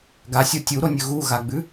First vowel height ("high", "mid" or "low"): low